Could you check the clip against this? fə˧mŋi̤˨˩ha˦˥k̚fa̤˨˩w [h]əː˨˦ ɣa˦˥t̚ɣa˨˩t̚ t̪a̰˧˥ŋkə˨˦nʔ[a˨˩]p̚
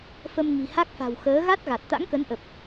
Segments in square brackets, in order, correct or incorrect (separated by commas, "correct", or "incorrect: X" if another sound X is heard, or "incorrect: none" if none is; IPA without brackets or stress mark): incorrect: x, incorrect: ə˨˩